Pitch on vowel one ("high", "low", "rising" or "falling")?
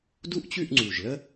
high